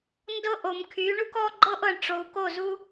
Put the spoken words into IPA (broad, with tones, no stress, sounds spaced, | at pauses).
n d ɤ˦ ʔ o˨ m kʰ y˨˦ ɳ u˦ k ɔ˦ ɡ͡ǃ ɤ˦ ʔ ɤ˨ ɳ ʈ͡ʂ o˨ u̯ k o˦˨ z u˦